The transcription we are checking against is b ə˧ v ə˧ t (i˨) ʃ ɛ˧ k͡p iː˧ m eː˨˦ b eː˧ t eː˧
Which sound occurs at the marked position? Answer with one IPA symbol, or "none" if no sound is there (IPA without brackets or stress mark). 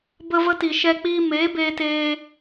i˨